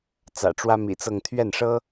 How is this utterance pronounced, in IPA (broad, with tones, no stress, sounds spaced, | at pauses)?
t͡s ä̰˨˩ ʈ͡ʂ w ä˥ m ḭ˨˩ t͡s ɤ˥˧ ŋ t̪ʰ ɥ ɛ˥˩ n ʂ ɤ˥